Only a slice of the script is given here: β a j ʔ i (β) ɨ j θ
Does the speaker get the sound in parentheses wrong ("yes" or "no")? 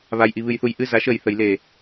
no